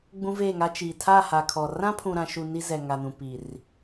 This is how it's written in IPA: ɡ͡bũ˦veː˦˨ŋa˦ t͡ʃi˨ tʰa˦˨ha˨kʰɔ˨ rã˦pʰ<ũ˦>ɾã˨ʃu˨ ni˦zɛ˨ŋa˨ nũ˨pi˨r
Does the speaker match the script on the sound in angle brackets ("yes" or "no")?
no